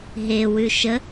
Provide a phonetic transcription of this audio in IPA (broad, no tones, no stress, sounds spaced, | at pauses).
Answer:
ɦ e w ʉ ʃ ə